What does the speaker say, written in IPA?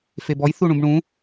febɔj θuɳũbɳũ

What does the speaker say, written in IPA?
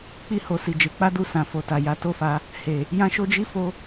k͡pi˦ho˧ si˨ d͡ʒe˨˦k͡pa˦ du˦˨sã˨ fo˨ta˨ja˨˦ to˦˨fa˧ | he˨ | jã˦ ʃo˦d͡ʒi˦ fo˦

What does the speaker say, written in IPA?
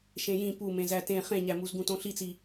ʃẽjĩ pumẽ zætẽ χẽɲæmuz ɡũtõɬit͡si

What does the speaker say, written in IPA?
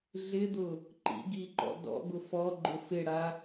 ɮɪd̪ʊ | ǃḭɡiǃɔ̰ dɔ̰ɡʊ fɔɡ͡ǃʊ fɪɽa

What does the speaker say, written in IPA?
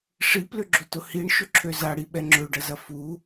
ʂiplʏɡ͡ǁotʊ hiɳʃʏǁʰø zaɽiɓɛ ŋ͡ǁøɖɐzɐ fu

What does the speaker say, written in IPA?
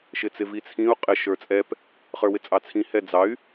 ʃɪt͡sɪvit͡sʰĩu̯ qʼɪ ʃə˞t͡sʼɛp | χə˞wɪt͡sʼɑt͡sʰĩ hɛd͡zɑy̯

